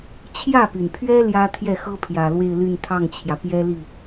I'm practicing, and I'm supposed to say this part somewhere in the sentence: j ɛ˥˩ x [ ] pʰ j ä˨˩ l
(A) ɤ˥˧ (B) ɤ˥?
B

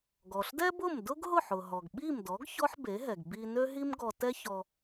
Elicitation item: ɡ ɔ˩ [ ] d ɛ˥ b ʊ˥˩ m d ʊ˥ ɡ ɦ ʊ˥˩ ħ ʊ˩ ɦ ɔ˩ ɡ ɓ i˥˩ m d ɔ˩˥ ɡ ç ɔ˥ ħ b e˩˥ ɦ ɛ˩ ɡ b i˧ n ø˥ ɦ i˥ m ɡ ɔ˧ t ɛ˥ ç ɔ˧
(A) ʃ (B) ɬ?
B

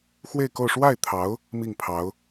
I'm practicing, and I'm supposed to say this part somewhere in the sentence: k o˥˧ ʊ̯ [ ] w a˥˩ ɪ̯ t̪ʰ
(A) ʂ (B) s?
A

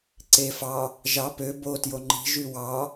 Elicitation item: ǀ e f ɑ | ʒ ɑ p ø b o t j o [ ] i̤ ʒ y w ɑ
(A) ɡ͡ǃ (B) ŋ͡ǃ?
B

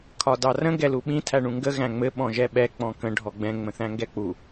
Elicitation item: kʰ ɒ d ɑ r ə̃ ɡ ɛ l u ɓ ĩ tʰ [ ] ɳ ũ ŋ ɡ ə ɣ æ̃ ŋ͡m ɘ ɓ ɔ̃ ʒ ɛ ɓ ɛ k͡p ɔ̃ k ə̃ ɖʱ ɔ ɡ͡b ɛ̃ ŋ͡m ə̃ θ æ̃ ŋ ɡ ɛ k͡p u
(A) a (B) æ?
B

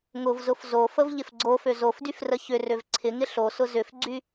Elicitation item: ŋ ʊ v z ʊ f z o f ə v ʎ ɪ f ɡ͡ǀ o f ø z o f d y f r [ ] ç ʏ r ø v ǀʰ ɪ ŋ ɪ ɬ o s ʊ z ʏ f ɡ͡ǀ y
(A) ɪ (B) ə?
B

